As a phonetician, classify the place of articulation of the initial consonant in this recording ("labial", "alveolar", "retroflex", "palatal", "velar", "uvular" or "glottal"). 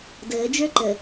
alveolar